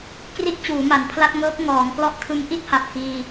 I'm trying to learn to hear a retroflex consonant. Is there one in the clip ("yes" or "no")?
no